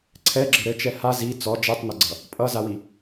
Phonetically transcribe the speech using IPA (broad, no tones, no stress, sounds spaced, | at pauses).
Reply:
ǀʰ ɛ ɡ͡ǁ ɘ ɾ ɘ t͡ʃ ɛ h a z i t͡s ɔ d͡ʒ ɛ tˤ n ʌ ɡ͡ǀ ʌ | pʼ ʌ z a w i